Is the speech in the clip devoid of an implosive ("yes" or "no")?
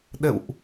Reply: no